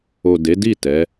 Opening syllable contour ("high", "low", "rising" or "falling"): low